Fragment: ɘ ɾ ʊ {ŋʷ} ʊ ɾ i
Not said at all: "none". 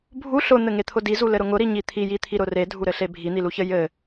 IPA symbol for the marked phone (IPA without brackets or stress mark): ŋ